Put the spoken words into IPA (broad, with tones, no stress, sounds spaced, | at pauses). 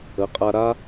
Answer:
ə˨˦ qʼ a˧ ɾ a˦